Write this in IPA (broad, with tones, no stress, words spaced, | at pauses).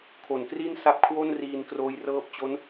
kʰo˩˦nkri˥˩n sa˦˥p̚kʰwo˥˩n riː˧nkroː˦˥jrɤː˦˥p̚t͡ɕo˦˥n